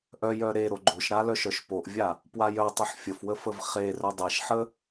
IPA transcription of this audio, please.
ʔœjœ ɾeɾo ɡ͡ǃoʃɾa lœʃœʃpoʔvʲa | pwajœtˤoħ fʲəfwə fəvχerœ dˤeʃħə

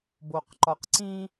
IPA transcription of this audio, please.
boqǃɒqǀĩ

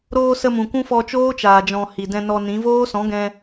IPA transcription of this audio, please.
ɾoː˧ sə˧mũ˨kʷũ˦ fɔ˧t͡ʃoː˦t͡ʃaː˨ d͡ʒɔ̃˨ hi˨dɛ̃˧ nɔ˧nĩ˨˦ voː˦ sɔ̃˨˦ɡɛ̃˧

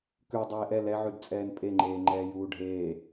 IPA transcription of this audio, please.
kʉ dˤeːʔɛ lɛʕʉdt͡sʼɛːn pʼeŋ͡ǃeːŋ͡ǃɛː juːɖʱeː

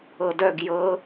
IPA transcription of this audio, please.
ɤdœɡ jɤ

